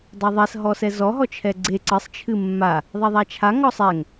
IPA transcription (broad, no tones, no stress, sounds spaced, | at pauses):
dˤ a ðˤ ɛ s ɦ ɔ s ɛ z ɔ ɦ ɔ t͡ʃʰ ɛ ɡ͡ǀ e ǀ ɨ sˤ t͡ʃʰ ɨ mː a | ðˤ ɛ ðˤ a t͡ʃʰ a ŋ ɔ sˤ ɛ ŋ